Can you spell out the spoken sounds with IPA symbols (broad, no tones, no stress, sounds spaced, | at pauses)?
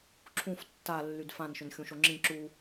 ǁʰ ũ f tː a lː y d f ã n ʃ ʏ n xʲ ũ ʃ o ŋ͡ǁ ĩ ǁ u